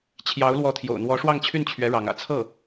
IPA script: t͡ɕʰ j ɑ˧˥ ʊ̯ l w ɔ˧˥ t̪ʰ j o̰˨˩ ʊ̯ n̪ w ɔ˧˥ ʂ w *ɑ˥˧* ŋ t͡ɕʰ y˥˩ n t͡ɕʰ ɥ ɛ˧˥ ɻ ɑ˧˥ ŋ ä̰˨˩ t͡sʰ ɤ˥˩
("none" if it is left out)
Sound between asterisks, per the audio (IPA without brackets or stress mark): ɑ˥˧